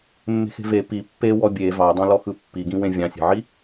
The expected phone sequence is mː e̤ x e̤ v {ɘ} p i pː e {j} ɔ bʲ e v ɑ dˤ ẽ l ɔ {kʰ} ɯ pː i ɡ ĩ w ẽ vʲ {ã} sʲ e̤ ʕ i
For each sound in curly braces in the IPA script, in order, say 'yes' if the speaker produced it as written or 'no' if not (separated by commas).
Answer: no, no, no, no